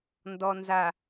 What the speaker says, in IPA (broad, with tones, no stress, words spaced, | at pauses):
ndɔ˨nza˨